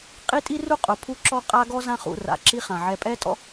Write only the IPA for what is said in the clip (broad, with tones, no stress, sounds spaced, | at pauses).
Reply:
qʼ i˥ tʼ i˥ r u˥ qʼ ʊ˨ pʰ u˦ ǁ ɔ˦ qʼ a˦ ɡ ɔ˥ z ã˦ χ ṵ˨ r a̰˩ ǁ i˥ χ ã˩ ʕ ɛ˨ pʼ ɛ˦ tʼ ɔ̰˦